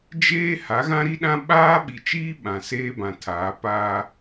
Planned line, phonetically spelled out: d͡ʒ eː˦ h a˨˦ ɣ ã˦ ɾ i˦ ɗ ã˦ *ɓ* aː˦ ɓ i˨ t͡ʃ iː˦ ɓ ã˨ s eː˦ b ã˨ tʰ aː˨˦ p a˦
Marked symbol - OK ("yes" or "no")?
yes